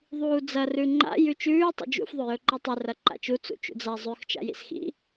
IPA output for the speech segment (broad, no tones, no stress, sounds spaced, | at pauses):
ðˤ uː d͡z ɐ r ʉ ŋ͡ǃ a̰ j ʉ t͡ʃ ʉː tˤ ṵ d͡ʒ ṵ f ðˤ ɵ j ɵ ǃ i tˤ ɨ r ɐ ǃ a̰ t͡ʃ u t͡s ṵ t͡ʃ ṵ d͡z a zˤ ʉ x t͡ʃ a̰ j ḭ s x ḭ